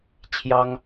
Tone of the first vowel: high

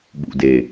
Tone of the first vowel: low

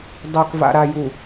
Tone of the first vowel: low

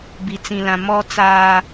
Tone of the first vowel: low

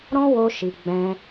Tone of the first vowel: high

